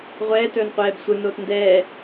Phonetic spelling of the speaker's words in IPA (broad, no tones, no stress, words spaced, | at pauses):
ʁʷɛːtɵːnqʷɛːb sʷɯnoːt ndɛː